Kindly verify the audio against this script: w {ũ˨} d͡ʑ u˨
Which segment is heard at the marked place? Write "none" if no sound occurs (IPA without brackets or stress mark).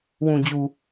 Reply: ũ˨